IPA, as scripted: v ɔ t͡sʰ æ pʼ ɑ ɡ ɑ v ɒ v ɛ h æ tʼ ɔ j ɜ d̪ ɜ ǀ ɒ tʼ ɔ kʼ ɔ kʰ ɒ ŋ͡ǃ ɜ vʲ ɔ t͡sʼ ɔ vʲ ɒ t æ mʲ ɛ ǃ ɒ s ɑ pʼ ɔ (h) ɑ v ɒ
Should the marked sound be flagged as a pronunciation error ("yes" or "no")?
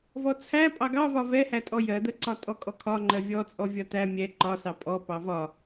yes